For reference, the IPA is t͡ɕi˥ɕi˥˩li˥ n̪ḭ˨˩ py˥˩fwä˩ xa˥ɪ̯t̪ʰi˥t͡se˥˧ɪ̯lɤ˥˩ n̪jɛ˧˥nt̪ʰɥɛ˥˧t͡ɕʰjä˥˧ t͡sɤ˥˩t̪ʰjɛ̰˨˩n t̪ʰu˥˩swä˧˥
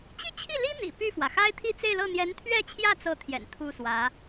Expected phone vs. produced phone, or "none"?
ɕ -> t͡ɕʰ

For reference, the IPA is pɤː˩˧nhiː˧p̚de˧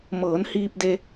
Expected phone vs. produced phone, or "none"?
p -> m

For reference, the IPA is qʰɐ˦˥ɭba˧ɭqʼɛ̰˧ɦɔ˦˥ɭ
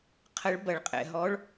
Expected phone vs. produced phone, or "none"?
a˧ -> ɐ˧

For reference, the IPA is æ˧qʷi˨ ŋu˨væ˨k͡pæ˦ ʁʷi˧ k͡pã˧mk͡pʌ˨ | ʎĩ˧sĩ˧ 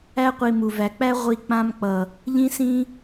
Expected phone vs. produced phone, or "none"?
ŋ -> m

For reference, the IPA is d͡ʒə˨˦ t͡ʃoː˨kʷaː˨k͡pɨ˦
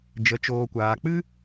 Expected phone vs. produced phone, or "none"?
none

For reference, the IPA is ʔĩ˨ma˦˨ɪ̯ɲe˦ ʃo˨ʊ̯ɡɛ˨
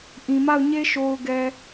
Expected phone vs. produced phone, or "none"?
ɪ̯ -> ʊ̯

